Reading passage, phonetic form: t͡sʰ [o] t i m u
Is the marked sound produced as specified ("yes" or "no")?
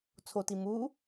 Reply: yes